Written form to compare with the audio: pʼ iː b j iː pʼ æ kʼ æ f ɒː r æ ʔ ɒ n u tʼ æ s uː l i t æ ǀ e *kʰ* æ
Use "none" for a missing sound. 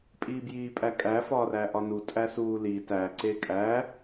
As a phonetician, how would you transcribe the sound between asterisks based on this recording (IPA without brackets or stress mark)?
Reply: kʼ